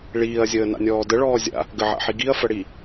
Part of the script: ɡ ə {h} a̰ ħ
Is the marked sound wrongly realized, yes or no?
yes